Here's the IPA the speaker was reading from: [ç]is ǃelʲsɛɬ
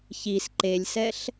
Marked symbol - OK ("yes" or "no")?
yes